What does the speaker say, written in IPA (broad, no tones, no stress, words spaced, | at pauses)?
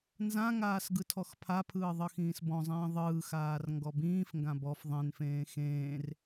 nzãŋaːs ɡɯtʰɔxpʰapʰɯː ðˤɯxĩːsbɔ̃zˤĩː ðˤɯːxaːr ŋɡɔbĩːfŋɡã bɔf ðˤẽnfẽː xẽːr